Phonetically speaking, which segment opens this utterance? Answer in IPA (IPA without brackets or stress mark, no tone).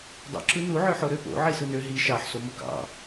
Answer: dˤ